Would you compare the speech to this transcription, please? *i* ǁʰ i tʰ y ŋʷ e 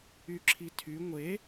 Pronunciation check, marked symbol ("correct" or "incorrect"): incorrect